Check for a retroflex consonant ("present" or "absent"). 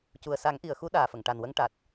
present